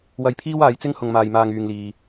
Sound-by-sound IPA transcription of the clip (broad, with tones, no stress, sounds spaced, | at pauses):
w ɐ˧ j pʰ iː˥ w aː˨˧ j t͡s ɪ˥ ŋ h ʊ˨ ŋ m aː˨ j m aː˨ ŋ yː˨ ŋ l iː˨